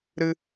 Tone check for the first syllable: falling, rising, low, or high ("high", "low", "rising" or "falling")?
high